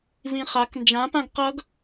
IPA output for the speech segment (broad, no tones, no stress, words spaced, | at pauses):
vĩχak nd͡ʒãpãɡ qʌɡ